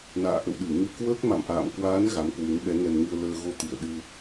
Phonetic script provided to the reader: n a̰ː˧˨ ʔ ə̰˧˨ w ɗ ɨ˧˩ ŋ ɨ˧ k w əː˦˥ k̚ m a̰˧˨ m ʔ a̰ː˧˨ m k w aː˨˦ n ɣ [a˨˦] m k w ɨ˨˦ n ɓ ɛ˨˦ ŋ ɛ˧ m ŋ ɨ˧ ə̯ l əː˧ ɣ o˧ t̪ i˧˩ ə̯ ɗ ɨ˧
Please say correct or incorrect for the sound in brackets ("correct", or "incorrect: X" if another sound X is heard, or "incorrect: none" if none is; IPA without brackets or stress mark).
correct